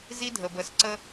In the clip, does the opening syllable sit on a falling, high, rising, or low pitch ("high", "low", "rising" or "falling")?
high